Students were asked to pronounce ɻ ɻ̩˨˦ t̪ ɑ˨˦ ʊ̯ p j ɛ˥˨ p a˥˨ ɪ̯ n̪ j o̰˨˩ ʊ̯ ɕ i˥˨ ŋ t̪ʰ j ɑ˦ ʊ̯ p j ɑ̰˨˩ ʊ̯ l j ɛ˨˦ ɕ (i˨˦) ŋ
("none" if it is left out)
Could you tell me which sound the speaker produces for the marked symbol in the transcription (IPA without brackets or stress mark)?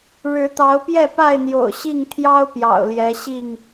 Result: i˥˨